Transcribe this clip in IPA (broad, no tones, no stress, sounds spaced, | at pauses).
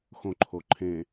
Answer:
x õ ǃʰ o ǃʰ ẽ